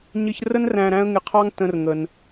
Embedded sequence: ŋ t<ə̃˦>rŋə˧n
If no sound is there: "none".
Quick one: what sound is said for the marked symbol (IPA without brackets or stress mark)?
ə̃˦